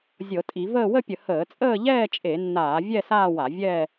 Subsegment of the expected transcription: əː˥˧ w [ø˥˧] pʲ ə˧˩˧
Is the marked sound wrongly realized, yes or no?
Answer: yes